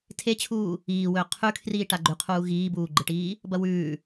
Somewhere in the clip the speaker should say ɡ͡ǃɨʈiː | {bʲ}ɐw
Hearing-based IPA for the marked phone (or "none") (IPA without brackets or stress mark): b